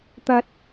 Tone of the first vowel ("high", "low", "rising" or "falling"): high